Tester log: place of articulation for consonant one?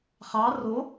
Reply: uvular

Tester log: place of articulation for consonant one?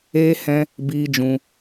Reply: glottal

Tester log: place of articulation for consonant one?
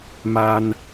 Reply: labial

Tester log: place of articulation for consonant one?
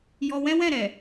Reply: palatal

